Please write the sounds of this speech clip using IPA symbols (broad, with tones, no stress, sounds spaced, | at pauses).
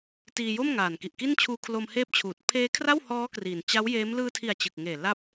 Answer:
t iː˧ j o˥˩ m ŋ aː˨˩ n k i˨˩ ʔ k i˥˩ n t͡ɕʰ uː˦˥ kʰ l o˧ m h eː˦˥ p̚ t͡ɕʰ uː˨˩ t̚ pʰ eː˦˥ kʰ r a˥˩ w h ɔː˦˥ k r iː˨˩ n t͡ɕ a˦˥ w j eː˦˥ m l ɯː˧ tʰ i˨˩ a̯ t͡ɕ ɯ˨˩ k̚ ŋ eː˨˩ l a˦˥ p̚